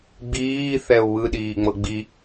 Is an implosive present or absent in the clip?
present